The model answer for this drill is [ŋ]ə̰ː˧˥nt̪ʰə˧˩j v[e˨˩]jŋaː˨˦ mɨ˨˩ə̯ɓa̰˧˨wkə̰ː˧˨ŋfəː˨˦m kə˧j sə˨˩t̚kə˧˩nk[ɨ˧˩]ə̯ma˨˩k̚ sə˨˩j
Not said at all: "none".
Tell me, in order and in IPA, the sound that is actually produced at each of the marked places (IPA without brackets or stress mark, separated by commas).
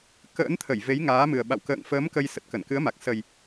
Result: k, e˨˦, ɨ˨˦